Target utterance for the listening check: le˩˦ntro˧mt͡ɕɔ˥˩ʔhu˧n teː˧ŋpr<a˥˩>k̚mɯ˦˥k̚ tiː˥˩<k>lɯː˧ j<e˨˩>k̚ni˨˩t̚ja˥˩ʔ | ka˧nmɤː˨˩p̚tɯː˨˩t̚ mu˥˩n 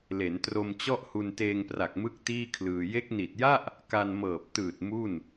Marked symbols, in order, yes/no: no, no, no

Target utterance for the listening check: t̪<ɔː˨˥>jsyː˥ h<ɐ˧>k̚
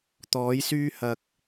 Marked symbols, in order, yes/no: yes, yes

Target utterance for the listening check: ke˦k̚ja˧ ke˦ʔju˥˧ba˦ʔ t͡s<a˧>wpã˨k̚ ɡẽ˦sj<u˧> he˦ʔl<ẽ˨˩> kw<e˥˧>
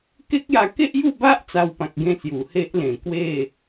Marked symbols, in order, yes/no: yes, no, yes, yes

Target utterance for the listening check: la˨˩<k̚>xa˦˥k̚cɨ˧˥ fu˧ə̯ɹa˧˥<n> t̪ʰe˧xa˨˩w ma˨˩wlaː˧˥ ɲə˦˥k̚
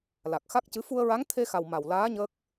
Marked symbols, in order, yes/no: yes, no

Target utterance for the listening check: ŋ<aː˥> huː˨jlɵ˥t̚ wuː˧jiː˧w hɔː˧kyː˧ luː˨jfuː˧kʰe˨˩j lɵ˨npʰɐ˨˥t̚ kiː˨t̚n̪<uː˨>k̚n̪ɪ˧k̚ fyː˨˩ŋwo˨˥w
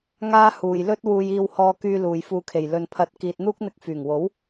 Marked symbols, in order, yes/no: yes, no

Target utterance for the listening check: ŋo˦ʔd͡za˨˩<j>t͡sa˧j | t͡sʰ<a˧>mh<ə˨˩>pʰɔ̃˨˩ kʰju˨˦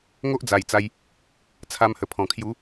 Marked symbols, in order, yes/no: yes, yes, yes

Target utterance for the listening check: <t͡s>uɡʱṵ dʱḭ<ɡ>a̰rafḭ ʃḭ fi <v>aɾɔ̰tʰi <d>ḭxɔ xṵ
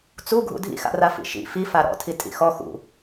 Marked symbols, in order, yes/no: yes, no, no, no

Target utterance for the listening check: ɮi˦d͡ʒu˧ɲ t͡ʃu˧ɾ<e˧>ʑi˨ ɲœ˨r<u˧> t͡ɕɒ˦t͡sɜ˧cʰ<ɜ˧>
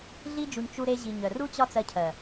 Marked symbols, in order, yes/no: yes, no, no

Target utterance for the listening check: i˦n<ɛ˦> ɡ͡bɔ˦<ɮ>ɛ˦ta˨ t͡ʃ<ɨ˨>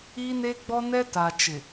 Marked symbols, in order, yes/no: no, no, no

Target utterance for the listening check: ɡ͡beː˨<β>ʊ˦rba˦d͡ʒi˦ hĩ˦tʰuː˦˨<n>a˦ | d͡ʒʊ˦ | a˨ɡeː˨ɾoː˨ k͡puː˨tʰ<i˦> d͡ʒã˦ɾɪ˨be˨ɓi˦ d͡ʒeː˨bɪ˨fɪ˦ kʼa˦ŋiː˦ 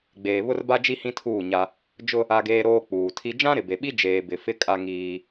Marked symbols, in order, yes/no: yes, no, yes

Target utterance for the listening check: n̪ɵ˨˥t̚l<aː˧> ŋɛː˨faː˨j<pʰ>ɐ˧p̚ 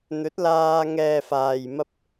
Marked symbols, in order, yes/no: yes, no

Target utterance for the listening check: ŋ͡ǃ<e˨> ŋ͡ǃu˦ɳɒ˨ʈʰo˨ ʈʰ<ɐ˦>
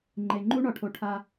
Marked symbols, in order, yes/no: yes, no

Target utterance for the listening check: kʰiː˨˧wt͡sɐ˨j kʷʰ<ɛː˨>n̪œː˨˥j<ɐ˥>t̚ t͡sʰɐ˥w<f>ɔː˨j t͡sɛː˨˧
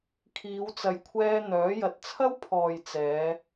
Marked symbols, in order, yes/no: no, no, no

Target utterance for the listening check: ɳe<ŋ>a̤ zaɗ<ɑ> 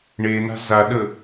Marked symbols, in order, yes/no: no, no

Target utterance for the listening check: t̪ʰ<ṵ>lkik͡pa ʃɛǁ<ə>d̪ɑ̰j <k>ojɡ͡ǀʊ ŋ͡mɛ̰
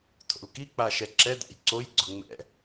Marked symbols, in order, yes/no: no, no, no

